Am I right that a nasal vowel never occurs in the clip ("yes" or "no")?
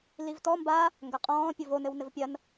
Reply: no